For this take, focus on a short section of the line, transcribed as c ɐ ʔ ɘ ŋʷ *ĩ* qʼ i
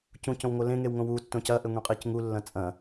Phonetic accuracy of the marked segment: correct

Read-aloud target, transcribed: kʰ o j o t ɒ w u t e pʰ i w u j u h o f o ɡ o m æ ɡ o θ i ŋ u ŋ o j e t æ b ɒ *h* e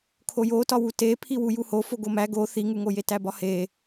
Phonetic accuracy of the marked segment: correct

